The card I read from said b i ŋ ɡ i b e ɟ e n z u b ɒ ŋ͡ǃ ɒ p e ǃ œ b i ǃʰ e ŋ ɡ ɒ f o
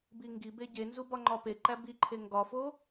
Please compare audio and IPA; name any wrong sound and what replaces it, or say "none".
œ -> æ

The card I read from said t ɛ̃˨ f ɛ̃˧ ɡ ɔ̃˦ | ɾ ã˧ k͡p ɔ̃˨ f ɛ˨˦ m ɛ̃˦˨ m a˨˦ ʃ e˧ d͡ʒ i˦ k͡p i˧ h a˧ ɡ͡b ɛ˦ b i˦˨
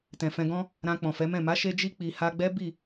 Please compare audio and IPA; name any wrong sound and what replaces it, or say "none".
none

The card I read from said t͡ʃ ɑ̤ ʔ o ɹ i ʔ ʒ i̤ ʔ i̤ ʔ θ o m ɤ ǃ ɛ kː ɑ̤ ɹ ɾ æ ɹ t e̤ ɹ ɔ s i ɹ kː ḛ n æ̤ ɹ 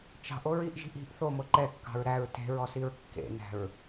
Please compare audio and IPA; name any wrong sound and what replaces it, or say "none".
none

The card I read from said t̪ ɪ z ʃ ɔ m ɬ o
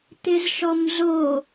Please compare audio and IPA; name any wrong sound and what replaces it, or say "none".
ɬ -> z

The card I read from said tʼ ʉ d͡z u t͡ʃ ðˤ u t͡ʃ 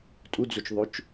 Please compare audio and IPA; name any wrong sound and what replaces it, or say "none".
ʉ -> u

